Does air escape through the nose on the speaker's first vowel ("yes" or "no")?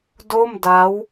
no